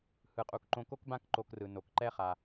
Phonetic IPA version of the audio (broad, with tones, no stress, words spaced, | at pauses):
hɯ˩qʼu˩kǃõ˧ ko˥kbã˥k ǃo˧krɯ˩ no˩k ǃɛ˥χa˩